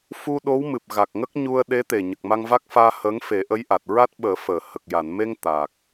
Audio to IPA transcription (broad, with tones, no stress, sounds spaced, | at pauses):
f u˧ ɗ o˧˥ w m ɨ˨˩ p̚ ɣ a˨˩ k̚ ŋ ə˦˥ k̚ ɲ u˧ ə̯ ɗ e˧˥ t̪ e˨˩ ɲ ə˨˩ k̚ m a˧ ŋ v a˦˥ k̚ f aː˧ h əː˧˥ ŋ f e˨˩˦ ʔ ə˧˥ j ʔ a˨˩ t̚ ɹ a˦˥ t̚ ɓ əː˨˩˦ f əː˨˩˨ h ə˨˩ k̚ j a˨˩˨ n m e˧ ŋ t̪ a˨˩ k̚